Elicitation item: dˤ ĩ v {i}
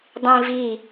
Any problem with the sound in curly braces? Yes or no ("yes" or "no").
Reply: no